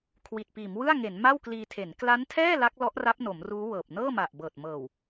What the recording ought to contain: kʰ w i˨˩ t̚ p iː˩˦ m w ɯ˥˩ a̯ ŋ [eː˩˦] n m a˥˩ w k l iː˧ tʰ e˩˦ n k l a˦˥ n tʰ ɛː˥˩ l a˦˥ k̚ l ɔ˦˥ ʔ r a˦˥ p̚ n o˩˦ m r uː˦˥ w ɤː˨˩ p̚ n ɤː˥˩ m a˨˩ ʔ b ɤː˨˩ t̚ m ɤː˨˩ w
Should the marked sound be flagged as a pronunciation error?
yes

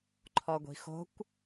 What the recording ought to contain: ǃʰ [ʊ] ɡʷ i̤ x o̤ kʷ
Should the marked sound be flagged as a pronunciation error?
yes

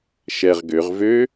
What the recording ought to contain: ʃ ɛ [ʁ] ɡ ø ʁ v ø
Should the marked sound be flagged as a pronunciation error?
no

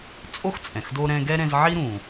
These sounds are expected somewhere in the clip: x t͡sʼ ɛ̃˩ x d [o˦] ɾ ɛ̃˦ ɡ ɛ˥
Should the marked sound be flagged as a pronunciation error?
no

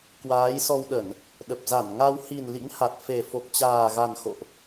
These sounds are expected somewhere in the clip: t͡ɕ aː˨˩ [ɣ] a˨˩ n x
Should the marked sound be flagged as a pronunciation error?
no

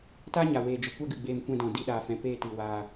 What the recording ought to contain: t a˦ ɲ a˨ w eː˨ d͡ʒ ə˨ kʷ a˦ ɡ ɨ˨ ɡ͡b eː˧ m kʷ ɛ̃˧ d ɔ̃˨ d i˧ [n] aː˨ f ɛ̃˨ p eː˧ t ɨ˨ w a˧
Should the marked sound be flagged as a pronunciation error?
yes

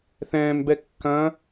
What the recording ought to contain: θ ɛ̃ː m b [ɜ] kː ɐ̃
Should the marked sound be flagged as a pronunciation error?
yes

